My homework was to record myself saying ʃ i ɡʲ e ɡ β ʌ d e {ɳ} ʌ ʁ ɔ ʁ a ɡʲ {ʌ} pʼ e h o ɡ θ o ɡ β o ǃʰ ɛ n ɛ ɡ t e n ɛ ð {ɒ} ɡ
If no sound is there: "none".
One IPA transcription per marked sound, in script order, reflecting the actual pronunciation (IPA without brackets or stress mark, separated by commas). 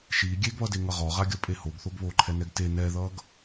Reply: ŋ, ʌ, ʌ